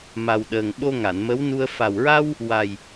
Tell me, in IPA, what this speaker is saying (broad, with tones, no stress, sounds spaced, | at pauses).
m a˨˩ w ɗ əː˨˩ ŋ ɓ o˧ ŋ a˨˩˨ n m ə˧˥ w n u˧ ə̯ f a˨˩ w ɹ a˧ w | w a˨˩ j